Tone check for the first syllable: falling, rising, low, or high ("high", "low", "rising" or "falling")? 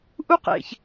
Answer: high